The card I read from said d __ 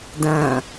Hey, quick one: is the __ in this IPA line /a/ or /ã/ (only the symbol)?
ã